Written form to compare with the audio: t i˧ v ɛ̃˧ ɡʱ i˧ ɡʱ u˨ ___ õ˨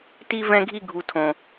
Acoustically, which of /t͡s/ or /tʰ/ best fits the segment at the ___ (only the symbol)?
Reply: tʰ